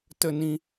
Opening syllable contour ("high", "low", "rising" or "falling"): high